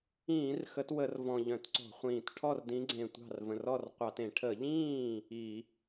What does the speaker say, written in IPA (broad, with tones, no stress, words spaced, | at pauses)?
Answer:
ĩː˧˩˧r xə˨˦twə˧˩˧rvɔ̃˨˩ ʎœ̃˧˩˧tǀɔ̤˧˩˧χʷĩː˨˩t ʈʰɔ˥˩rdĩ˨˦ɡ͡ǀẽ˨˩ tʷɑ̤˥˩r və̃˨˩rɔ˥˩r qʷɑ˧˩˧tẽ˧˩˧ ʈʰə˧˩˧ʎĩː˥˩ | i˧˩˧